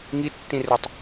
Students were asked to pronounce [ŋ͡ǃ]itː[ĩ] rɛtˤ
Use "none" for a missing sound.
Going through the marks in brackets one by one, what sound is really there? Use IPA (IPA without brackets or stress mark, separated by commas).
ŋ, ĩ